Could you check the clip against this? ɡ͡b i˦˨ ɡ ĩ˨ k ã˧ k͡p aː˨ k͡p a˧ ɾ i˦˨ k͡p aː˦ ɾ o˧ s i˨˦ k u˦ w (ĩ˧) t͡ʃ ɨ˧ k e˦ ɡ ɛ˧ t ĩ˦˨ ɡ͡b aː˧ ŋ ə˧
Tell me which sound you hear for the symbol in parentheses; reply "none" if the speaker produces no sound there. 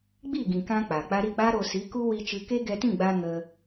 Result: i˧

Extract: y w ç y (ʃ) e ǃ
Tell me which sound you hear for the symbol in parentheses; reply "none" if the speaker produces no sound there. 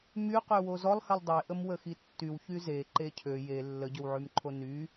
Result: z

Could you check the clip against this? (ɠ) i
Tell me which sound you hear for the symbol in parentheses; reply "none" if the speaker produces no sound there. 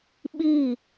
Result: ɓ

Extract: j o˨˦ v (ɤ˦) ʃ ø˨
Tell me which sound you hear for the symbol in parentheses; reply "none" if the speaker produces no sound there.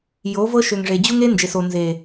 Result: ɤ˦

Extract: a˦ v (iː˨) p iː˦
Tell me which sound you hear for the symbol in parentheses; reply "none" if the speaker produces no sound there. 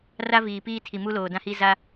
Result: iː˨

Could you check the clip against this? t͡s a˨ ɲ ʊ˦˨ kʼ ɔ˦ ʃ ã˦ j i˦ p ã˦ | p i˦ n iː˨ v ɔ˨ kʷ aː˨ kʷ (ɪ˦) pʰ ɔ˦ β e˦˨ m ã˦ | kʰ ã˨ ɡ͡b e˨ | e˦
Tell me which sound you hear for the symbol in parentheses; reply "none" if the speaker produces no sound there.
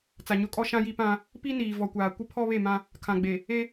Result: ɪ˦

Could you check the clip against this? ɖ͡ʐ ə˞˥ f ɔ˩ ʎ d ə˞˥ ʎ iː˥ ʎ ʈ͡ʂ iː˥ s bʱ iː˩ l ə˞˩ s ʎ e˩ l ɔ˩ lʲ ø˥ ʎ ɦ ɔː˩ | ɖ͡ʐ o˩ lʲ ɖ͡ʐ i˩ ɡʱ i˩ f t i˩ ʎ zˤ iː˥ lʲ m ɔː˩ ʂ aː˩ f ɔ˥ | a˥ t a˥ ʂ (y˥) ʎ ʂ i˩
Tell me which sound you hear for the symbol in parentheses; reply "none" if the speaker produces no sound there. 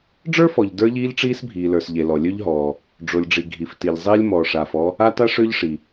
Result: ø˥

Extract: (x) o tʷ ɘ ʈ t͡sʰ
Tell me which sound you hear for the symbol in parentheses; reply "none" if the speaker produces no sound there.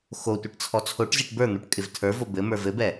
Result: x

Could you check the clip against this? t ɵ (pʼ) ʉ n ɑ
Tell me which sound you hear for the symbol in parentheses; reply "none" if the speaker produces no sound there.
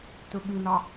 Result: ɓ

